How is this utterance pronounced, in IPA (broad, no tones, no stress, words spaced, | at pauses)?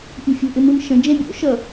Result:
pʲɛ̤fʲo̤ ʔɪmɯmʃə̃ d͡ʒɛ̃bʲo̰ ʃʌ